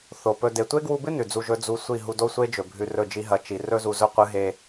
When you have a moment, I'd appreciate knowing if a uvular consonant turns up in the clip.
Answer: yes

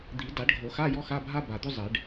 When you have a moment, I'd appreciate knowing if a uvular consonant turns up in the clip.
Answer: no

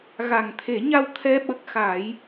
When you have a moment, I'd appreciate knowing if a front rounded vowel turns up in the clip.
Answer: no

